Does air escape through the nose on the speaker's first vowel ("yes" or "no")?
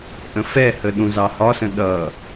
yes